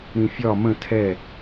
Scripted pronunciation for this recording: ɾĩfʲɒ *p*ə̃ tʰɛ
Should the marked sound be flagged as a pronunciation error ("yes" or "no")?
yes